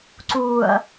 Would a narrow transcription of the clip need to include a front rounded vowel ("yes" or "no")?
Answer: no